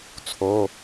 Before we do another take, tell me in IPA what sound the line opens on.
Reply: t͡sʰ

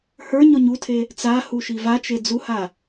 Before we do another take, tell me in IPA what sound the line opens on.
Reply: h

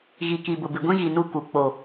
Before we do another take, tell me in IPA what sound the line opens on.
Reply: ɣ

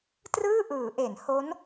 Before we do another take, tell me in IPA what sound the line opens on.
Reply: t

